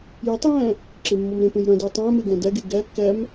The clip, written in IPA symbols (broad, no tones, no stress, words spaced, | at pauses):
jætˤjæ̃ | ǁemːɔmɾẽpẽj ɾœ̃dʉ tˤæ̃me ɡæ̃dæɡe ɡæ kːæm